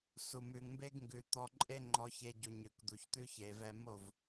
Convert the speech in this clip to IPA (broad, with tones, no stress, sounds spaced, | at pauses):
s u˨ m ʉ˨ ŋ m b e˦ ɡ ŋ ɡ ʉ˨ t̪ ɔ˧ ǃʼ e˦ ŋ͡ǃ ɔ˧ ç e˧ ɟ u˨ ɲ ʉ˨ k d̪ u˨ ç t̪ ʉ˦ ç e˨ v ɛ˧ m o˦˨ v